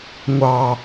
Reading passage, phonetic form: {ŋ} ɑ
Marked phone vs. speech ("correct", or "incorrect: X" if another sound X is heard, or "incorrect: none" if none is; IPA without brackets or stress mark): incorrect: ŋʷ